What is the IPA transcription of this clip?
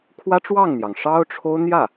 kʰ w ä˥ ʈ͡ʂ w ɑ˥˩ ŋ n̪ j ɑ˩ ŋ ʂ ɑ˥ ʊ̯ ʈ͡ʂʰ o˥ ʊ̯ n̪ j ä˥˩

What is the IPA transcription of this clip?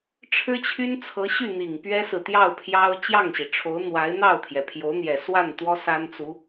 ʈ͡ʂʰ ɻ̩˥ t͡ɕʰ y˥ n t͡sʰ ɤ˧˥ ɕ y˥˩ n̪ i˨˩ ŋ p ɥ ɛ˥ s ɹ̩˨ t̪ j ɑ˥˩ ʊ̯ pʰ j ɑ˥ ʊ̯ t͡ɕ j ɑ˥˩ ŋ ɕ i˩ ʈ͡ʂʰ o˧˥ ʊ̯ n̪ w a˧˥ ɪ̯ n̪ ɑ˥˩ ʊ̯ t̪ʰ j ɛ˩ pʰ j o˧˥ ʊ̯ n̪ j ɛ˨˩ s w a˥˩ n t̪ w ɔ˥ s a˥ n t͡s u˧˥

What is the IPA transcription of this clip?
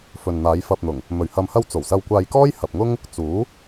f ɵ˨ n n̪ aː˨˧ j f ɐ˧ p̚ n̪ ʊ˨˩ ŋ | m ɵ˨ ɥ h ɐ˨ m h ɐ˧ w t͡s o˨˩ w s ɐ˧ w kʷ aː˧ j k ɔː˥ j h ɐ˨ p̚ ŋ ʊ˥ ŋ | t͡s uː˨˥

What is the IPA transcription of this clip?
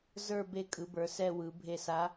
z ə˞˦˨ b e˦˨ kʼ ɯ˩˧ b ə˞˩˧ s ɛ˦˨ w ɯ˩˧ bʱ e˦˨ s a˧˥

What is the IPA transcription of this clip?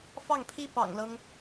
f ɑ˥˩ ŋ pʰ i˥ p ɑ̰˨˩ ŋ l ɤ˦ ŋ

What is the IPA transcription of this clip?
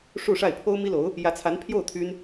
ʂ u˥˧ ʂ a˥˩ ɪ̯ pʰ o˥ ʊ̯ m i˥ l o˧˥ ʊ̯ | j ä˧˥ t͡sʰ a˧˥ n pʰ j o˥˩ ʊ̯ t̪ʰ y˥ n

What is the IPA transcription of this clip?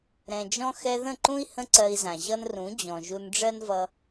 ɾ ɛ̃˨ d͡ʒ ɔ̃˧ x ɛ˧ ð ə̃˦˨ ǃ ũ˦ i̯ h ə̃˦ ǀ ɜ˧ i̯ z ã˨ ʑ ʌ˦ n r ũ˨˦ d͡ʑ ɔ̃˨ ʒ u˧ n ɖ͡ʐ ɜ˦ n v ʌ˧

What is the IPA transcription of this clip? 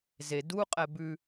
z e d u qʼ ɛ b ʉ

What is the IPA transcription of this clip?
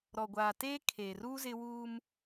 ɾ ɔ˨ ɡʷ aː˨ t eː˦ kʰ eː˨ r uː˦ z ɪ˦ w uː˦ m

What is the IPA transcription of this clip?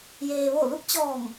j eː˩ ʋ o˧˩ l u˧˥ k̚ t͡ɕ ɔː˧˩ ŋ

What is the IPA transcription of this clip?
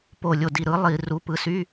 p o˧˩ lʲ o˧˩ d i˧˩ ɾ ɯ˨˦ lˠ i˧˩˧ r u˨˦ p ɯ˨˦ s y˧˥˧

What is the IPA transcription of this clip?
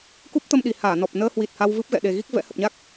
k u˦˥ p̚ t̪ ə˧ m ɗ i˨˩ h aː˧˩ n ɔ˨˩ p̚ n əː˧ h w i˨˩ t̚ h a˧ w v ɨ˦˥ p̚ ɣ ɛ̰˧˨ ɗ e˨˩ ɣ i˦˥ k̚ v ɛ̰˧˥ h ə˨˩ p̚ ɲ a˦˥ k̚

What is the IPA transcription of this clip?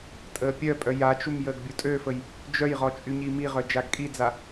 tʼ əː pʲ œ pʼ œ j a t͡ʃ u m j əː ɡ bʲ u tʼ ø f ə j | d͡ʒ œ j ʁ ɔ t͡ʃʼ y ɲ i m i ʁ œ d͡ʒ a ɡ kʼ i d͡z a

